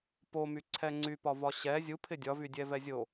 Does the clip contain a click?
yes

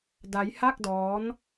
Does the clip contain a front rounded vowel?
no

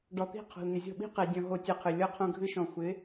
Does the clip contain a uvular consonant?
yes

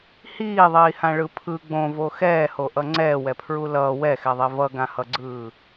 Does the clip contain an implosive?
no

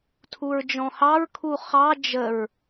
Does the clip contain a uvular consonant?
yes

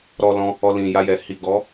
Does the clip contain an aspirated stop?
no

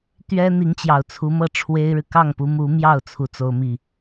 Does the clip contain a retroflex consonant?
yes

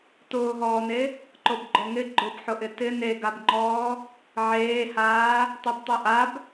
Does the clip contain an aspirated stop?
no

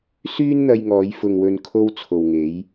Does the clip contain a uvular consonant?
no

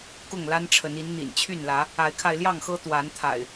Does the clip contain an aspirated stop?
yes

